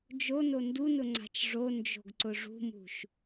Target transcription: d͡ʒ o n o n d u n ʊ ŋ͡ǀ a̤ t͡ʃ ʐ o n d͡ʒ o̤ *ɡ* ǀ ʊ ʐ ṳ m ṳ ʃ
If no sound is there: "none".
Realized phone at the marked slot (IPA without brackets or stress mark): ɡ